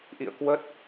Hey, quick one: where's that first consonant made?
throat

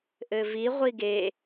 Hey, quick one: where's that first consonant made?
throat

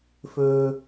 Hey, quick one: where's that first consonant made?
lips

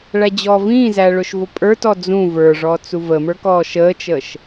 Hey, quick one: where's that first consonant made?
retroflex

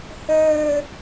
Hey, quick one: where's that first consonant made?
throat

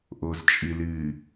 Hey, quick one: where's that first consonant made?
throat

